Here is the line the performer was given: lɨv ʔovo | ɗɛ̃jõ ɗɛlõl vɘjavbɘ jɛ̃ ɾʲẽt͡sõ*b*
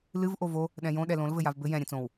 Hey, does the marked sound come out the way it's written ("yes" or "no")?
no